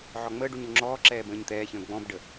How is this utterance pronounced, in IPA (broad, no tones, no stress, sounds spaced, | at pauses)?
ʕ ɔ ŋ͡m əː ɖ u ɲ o ŋ͡ǁ ɔː ǁ ɛː b ə̃ː ɲ t̪ ɛː ç ə̃ː ɡ͡b ɔ̃ b ɖ ə